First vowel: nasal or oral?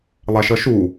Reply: oral